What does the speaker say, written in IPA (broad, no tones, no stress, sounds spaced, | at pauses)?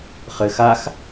χ ɘ x a x